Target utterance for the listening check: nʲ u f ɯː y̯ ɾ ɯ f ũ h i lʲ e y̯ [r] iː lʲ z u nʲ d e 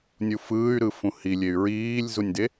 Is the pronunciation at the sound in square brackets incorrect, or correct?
incorrect